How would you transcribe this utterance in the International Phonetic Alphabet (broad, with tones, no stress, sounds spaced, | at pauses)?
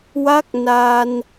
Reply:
w a˦˥ k̚ n a˧ n